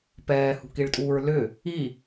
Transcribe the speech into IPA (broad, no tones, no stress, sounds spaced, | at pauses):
p ɛː h ṳ k i ɭ tʼ uː ɹ l ʏ | i